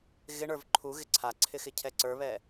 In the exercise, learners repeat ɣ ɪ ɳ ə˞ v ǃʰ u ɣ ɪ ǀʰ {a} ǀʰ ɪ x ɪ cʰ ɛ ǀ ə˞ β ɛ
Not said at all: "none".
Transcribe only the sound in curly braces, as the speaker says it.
a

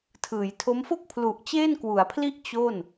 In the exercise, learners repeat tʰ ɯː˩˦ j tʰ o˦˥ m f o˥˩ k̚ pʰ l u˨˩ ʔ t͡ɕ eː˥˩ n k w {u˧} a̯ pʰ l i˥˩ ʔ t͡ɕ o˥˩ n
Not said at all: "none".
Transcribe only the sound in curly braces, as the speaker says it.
u˩˦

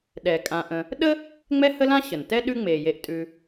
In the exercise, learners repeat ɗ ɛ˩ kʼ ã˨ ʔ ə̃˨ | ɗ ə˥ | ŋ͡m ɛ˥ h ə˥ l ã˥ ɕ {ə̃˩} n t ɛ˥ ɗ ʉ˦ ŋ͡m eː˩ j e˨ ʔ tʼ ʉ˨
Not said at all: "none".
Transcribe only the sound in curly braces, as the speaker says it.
ə˩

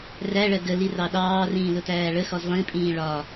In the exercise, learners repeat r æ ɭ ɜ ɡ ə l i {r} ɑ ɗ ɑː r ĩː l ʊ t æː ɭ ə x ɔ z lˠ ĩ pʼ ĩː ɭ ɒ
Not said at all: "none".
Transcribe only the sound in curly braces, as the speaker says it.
r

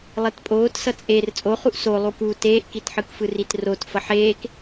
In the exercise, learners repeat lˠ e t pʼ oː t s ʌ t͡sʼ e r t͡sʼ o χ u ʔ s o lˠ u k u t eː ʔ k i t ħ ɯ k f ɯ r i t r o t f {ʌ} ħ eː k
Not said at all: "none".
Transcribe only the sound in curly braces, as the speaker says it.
ʌ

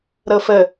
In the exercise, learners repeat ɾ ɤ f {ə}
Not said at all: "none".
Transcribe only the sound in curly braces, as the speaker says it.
ə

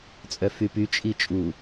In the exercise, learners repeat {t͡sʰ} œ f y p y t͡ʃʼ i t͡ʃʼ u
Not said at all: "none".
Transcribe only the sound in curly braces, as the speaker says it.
t͡sʼ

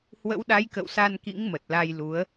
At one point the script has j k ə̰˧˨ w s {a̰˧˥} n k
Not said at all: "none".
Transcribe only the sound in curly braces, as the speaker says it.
a˧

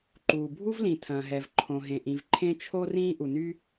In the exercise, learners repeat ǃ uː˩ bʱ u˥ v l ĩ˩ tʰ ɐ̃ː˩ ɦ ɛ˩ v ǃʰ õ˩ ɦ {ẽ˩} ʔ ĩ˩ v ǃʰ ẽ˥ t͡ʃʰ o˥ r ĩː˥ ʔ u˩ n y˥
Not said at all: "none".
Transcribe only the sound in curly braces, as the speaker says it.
ẽ˩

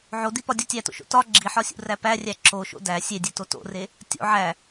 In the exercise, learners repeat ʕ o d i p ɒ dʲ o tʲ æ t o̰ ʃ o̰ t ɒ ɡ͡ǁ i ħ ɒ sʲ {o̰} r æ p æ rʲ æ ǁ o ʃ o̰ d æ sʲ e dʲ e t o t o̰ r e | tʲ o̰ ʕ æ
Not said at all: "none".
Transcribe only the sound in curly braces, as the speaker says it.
ṵ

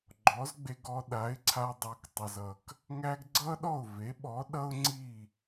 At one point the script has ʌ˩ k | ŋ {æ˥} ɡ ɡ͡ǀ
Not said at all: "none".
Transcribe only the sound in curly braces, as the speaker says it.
æ˥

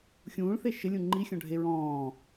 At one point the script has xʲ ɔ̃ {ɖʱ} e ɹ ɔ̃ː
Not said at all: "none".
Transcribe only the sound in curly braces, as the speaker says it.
ɖʱ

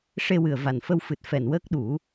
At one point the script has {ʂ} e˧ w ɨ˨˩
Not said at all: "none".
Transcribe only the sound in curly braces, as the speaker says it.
ʂ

